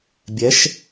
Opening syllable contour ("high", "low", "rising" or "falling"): rising